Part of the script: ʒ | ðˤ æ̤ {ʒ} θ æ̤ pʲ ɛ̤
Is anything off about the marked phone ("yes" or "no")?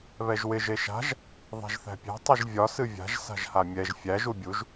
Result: no